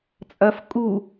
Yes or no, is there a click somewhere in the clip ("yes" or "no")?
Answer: no